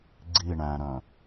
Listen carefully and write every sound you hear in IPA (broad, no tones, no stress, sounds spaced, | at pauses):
ɡ͡ǀ i ɳ æ̃ ɾ œ̃